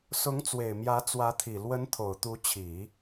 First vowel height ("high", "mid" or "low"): high